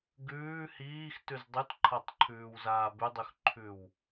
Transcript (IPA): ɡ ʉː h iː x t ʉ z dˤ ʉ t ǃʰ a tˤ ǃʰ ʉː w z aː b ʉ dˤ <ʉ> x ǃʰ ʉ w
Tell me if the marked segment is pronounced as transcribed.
yes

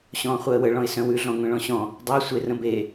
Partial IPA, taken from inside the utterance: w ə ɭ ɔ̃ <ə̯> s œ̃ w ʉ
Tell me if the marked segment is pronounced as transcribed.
no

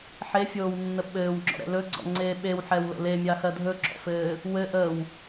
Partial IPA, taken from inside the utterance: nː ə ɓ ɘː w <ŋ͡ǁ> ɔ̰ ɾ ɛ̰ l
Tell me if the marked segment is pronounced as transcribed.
yes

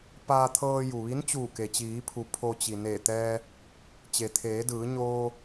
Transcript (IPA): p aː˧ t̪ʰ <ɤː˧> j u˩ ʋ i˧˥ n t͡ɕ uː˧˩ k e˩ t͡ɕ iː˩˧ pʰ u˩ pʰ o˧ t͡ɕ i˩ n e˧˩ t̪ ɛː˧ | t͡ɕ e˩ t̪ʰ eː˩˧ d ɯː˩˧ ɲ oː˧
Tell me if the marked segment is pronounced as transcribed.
yes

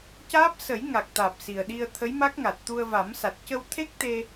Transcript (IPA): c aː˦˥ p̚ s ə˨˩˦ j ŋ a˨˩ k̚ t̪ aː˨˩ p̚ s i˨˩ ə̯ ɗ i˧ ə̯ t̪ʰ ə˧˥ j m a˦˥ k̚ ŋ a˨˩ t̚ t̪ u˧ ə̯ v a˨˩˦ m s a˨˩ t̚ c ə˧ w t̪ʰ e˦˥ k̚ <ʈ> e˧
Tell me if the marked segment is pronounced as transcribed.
no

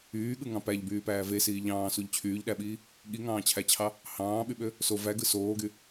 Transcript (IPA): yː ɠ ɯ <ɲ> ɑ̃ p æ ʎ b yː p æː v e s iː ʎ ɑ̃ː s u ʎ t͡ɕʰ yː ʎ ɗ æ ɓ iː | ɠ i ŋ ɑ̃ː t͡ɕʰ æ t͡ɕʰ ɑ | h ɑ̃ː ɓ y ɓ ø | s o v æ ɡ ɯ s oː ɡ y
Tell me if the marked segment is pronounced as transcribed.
no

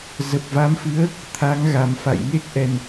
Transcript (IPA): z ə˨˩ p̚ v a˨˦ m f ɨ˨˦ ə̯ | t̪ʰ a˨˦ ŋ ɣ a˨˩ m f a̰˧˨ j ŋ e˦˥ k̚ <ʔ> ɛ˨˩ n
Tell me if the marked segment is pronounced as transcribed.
yes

